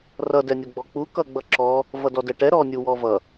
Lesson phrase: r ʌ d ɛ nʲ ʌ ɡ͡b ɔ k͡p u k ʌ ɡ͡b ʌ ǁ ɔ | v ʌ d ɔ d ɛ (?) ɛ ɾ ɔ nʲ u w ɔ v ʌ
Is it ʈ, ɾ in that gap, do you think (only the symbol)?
ʈ